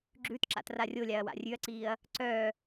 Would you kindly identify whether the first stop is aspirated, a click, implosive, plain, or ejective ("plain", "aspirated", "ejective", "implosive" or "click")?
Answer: click